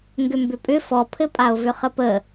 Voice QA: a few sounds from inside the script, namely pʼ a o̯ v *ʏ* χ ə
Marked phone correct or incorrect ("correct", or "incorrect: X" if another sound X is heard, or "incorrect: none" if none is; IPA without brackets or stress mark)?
correct